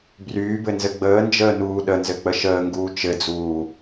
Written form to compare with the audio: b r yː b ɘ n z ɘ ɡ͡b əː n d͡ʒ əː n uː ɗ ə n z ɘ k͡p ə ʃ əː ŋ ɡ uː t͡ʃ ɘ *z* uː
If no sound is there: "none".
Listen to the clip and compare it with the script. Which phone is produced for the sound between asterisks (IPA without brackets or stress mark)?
d͡z